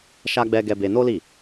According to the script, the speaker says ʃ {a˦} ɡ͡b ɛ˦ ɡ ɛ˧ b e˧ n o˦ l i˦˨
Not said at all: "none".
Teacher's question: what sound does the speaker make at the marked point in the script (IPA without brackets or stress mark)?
a˦